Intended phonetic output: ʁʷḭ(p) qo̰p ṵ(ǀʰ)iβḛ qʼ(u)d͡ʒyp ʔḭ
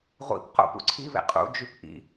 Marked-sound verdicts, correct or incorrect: correct, correct, incorrect: ṵ

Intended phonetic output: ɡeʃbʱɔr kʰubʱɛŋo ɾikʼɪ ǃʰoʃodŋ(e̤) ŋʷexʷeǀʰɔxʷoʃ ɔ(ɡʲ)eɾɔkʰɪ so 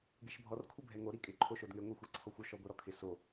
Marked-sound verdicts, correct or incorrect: incorrect: e, incorrect: ɡʷ

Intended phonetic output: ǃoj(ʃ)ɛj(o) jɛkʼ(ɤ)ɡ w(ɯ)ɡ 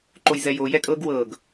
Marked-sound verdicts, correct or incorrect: incorrect: z, correct, correct, incorrect: ɤ

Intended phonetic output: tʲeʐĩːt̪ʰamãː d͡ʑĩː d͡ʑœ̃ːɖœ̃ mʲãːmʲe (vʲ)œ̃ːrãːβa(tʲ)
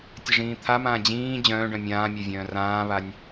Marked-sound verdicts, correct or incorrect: correct, incorrect: nʲ

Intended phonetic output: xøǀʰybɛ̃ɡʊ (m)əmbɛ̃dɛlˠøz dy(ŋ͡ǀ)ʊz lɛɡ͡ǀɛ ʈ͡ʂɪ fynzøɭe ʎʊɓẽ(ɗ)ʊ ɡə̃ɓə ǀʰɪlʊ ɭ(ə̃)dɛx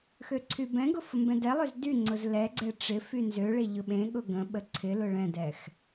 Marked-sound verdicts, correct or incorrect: incorrect: f, correct, incorrect: ɠ, incorrect: ɛ̃

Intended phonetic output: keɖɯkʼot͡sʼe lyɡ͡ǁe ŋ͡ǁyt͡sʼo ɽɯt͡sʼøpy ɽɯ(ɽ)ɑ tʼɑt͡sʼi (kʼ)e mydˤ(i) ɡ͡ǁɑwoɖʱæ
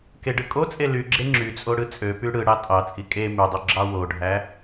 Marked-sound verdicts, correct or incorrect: correct, correct, incorrect: y

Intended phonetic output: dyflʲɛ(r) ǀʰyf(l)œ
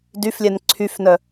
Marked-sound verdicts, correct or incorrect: incorrect: n, incorrect: n

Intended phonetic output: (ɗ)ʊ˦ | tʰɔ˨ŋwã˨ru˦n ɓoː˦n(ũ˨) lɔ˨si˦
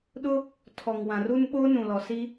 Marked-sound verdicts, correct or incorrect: correct, correct

